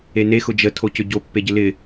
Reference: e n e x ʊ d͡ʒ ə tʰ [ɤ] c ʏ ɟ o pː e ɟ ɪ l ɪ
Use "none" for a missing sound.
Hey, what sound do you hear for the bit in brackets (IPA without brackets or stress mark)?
o